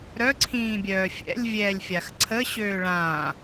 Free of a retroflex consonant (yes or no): no